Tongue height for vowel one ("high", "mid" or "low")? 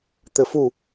mid